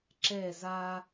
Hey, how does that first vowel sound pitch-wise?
falling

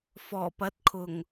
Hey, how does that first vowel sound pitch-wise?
low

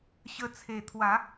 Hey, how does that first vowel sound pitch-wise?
high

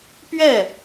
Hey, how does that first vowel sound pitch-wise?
falling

